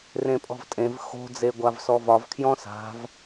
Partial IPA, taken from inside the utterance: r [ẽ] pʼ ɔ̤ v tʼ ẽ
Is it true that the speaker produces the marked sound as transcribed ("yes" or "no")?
yes